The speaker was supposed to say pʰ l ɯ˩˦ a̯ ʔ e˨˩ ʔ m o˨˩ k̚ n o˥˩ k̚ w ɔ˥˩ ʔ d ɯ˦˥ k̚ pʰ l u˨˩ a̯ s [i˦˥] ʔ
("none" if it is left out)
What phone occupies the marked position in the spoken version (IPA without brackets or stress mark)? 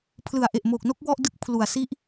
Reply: i˦˥